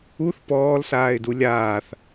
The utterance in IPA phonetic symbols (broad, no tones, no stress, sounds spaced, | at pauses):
u θ p ɔː l s aː ɪ̯ d u lʲ aː θ